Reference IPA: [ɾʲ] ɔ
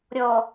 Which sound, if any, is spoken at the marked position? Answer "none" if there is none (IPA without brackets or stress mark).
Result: ɾʲ